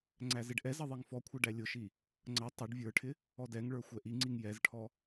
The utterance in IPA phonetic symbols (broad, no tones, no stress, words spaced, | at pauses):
ŋ͡ǀæzɪɖʔɛzʌ ðˤiŋfɔkʷʰʌ ɖælʲʊʃi | ŋ͡ǀʌ tˤʊɖ vʲə˞ʈʰɪ | ɔdɛŋɭə˞ xʷɛʔiŋ͡ǀiŋ jɛzʈʰɔ